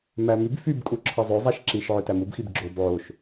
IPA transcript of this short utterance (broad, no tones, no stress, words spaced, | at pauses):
mæmyb fyb kʼuǁʰɑzˤø zˤæʃǁiʃ ʕøtæmubxib ɡ͡ǁob ʕoʃ